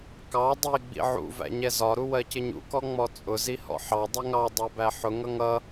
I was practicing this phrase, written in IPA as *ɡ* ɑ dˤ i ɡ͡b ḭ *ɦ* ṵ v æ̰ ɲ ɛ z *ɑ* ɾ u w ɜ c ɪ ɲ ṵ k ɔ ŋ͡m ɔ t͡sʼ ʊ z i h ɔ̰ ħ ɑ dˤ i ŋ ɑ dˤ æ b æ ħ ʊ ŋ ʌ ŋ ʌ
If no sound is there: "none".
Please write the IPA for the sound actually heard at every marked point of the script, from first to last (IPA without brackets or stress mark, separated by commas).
k, ʕ, ɒ